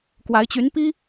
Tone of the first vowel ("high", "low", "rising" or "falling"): rising